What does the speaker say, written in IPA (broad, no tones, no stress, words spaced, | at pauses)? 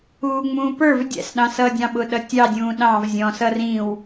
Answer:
uːŋ͡mũːpə˞v dʲæ̰sɗɑ̃sʌːdʲɑ̃ ɓʊɗʌtʲɑdʲũː ɗɑ̃v zʲɔ̃sʌ rĩw